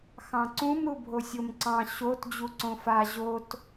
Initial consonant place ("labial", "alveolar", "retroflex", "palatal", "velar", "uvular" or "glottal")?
velar